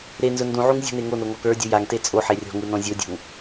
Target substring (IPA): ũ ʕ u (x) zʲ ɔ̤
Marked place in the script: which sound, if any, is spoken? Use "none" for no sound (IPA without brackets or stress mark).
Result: ŋ